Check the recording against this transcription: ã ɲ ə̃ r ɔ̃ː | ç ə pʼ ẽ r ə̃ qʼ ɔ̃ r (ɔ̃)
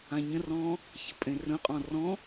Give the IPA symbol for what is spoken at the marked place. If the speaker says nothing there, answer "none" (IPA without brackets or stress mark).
ɔ̃